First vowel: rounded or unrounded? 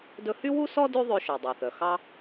rounded